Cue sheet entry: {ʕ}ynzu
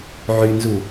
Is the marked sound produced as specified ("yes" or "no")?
yes